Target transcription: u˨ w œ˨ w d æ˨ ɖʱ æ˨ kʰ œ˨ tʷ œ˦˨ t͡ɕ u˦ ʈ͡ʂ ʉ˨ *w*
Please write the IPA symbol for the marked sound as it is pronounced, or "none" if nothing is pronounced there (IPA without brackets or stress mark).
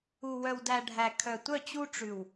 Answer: w